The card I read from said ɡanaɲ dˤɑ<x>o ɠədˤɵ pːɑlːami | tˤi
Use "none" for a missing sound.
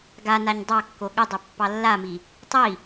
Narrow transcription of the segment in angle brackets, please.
kː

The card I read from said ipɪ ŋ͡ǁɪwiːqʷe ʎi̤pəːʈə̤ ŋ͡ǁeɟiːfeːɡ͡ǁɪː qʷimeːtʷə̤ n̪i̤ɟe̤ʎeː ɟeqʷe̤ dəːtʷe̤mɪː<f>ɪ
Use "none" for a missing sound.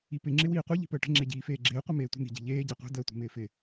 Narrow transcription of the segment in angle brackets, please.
f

